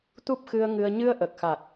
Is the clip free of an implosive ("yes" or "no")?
yes